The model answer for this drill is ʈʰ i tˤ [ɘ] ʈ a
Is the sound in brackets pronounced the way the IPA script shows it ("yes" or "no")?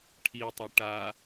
yes